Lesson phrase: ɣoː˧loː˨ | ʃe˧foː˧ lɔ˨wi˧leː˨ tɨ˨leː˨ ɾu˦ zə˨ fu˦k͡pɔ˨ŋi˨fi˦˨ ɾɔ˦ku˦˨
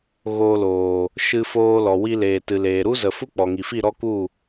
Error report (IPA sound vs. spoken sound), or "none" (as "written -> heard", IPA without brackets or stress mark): e˧ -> ɨ˧